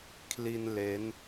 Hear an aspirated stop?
yes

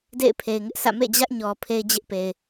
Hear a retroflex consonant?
no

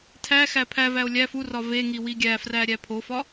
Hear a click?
no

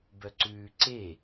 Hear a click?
yes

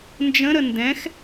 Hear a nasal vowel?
yes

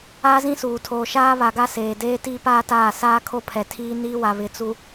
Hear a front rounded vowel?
no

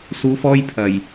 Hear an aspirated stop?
yes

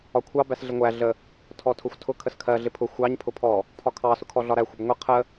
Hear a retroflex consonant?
no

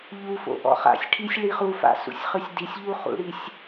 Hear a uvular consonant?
yes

